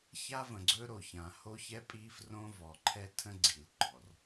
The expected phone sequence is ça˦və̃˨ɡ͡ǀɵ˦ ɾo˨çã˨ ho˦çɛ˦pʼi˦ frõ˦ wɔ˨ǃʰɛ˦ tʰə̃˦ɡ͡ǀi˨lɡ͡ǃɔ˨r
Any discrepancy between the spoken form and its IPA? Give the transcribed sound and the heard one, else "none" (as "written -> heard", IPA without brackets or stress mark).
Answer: w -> v